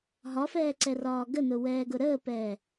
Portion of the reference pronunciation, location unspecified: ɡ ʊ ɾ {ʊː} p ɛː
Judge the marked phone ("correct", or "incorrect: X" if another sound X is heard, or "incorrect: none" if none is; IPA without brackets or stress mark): incorrect: əː